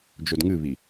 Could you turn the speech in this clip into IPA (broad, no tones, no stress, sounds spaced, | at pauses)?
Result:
d͡ʒ o d ŋ ɨ β i